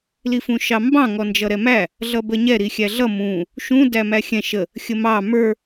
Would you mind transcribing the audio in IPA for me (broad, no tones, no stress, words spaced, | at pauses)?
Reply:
lifũʃɑmbɑ̃ ŋɔnd͡ʒʌɾɛmæ | ɮʌbəɲɛ ɾixʲæɮʌ mũ | ʃũ dæmæxʲɛ̃ ʃə | xʲəmɑ mə˞